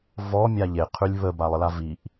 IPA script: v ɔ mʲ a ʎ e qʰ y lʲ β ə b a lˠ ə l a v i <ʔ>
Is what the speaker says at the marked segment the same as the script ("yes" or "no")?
yes